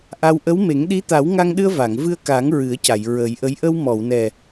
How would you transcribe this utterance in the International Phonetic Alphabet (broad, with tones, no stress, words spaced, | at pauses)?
ʔa˧w ʔə˧˥wme˨˩˦ŋ ɗi˧˥t̪a˨˩˦wŋa˧ŋɗɨ˧ə̯ va˨˩˨ŋvɨ˧ə̯ka˨˩˦ŋ ɹɨ˨˩˦ə̯ca˨˩˨j ɹə˨˩˦jʔə˧˥j ʔə˧wmɔ˨˩˨wnɛ˨˩